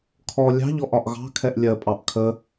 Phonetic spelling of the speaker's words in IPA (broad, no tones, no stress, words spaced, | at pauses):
kʰɔ lʲɑ̤ʎɔ ʔɒʔɣɑ̤kʰɛʔ lʲɜpʼɑʔ kʰə